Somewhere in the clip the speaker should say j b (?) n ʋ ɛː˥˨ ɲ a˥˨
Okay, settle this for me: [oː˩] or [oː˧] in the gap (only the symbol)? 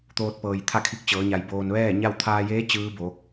oː˧